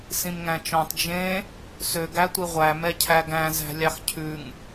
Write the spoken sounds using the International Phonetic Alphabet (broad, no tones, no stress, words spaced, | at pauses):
sĩmŋæ̃t͡ʃɔ̃tˤ d͡ʒẽ | søɡ ætʷiʁʷæ mɛcʰæɡæ̃ zæ̤lʲɑxcʰʉŋ